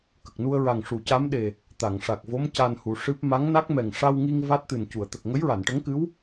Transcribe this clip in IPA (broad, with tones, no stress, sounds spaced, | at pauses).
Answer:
k ə˨˩ k̚ n u˧ ə̯ ɹ a˨˩ ŋ ʂ u˨˩˨ c a˧˥ m ɗ e˨˩ | t̪ a˨˩˨ ŋ ʂ a˨˩ k̚ v o˧˥ m c a˧ n h u˨˩ ʂ ɨ˦˥ p̚ m a˧˥ ŋ n a˦˥ k̚ m ɛ˨˩ ŋ ʂ a˧ w ŋ i˧ ŋ v a˦˥ t̚ t̪ ɨ˨˩ n c u˨˩˨ ə̯ t̪ ə˨˩ k̚ ŋ ə˧˥ j ɹ a˨˩˨ n ʈ ə˧˥ ŋ k ɨ˧˥ w